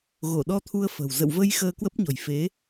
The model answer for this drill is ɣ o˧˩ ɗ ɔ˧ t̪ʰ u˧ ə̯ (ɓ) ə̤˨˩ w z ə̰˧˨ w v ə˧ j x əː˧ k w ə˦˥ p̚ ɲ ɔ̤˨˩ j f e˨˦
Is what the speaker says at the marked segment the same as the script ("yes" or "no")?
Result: no